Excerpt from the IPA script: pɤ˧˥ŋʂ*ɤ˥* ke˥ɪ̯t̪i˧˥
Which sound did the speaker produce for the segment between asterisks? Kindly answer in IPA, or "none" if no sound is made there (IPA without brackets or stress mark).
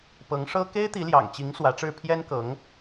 ɤ˥